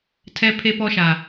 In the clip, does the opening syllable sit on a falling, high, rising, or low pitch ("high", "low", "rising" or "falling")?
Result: high